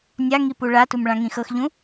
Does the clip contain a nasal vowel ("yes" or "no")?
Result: yes